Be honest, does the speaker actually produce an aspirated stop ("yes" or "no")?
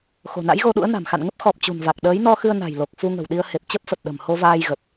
no